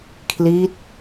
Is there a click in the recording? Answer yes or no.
no